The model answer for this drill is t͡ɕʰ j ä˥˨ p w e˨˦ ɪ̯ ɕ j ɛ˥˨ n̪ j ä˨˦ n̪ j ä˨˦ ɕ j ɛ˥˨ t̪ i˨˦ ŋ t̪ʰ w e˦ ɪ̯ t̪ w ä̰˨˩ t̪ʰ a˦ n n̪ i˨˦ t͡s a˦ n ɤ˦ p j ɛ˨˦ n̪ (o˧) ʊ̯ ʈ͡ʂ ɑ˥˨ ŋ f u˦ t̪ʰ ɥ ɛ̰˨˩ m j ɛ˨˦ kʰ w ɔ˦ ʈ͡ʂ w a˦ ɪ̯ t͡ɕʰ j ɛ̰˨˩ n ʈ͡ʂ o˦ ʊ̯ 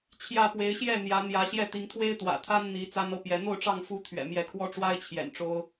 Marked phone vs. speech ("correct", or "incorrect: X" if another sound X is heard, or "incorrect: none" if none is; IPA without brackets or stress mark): incorrect: o˥˨